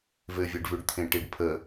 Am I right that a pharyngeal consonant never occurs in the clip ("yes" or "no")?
yes